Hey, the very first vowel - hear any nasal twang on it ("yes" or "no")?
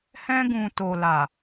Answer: yes